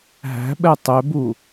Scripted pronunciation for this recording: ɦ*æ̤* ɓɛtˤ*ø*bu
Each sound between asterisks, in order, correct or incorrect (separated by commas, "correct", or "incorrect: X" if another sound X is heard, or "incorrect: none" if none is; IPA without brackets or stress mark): correct, correct